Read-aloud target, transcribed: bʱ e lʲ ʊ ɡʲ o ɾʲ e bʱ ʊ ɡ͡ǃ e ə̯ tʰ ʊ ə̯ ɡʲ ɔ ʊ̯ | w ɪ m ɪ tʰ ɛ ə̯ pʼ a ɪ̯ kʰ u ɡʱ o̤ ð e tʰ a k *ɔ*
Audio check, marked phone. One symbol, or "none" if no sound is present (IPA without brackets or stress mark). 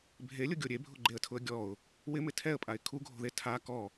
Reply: ɔ